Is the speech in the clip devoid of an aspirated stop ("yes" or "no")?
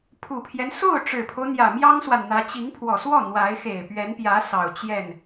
no